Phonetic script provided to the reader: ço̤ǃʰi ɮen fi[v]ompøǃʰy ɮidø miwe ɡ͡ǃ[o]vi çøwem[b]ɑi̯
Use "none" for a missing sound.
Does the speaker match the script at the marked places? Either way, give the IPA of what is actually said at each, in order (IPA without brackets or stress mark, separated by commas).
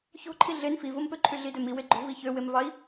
v, o̤, v